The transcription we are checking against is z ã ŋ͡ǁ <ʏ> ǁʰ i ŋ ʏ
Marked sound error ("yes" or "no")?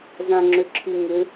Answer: no